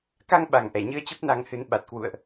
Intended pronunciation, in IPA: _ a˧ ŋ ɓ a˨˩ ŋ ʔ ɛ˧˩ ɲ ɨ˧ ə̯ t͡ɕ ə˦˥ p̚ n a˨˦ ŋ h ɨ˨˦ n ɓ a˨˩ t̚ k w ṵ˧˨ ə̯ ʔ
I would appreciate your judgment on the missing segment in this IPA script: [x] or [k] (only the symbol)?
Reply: k